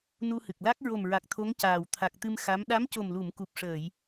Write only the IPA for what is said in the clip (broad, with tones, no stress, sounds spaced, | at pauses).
n u˧ h ɨ˨˩ k̚ l a˦˥ k̚ ɹ o˨˩ m ɹ a˨˩ k̚ t̪ʰ o˧˥ ŋ c aː˨˩ w t̪ʰ a˨˩ k̚ t̪ ɨ˧ m x a˧˥ m ɗ a˧˥ m c o˨˩ m l u˨˩˨ m k u˨˩ p̚ ʂ əː˨˩˨ j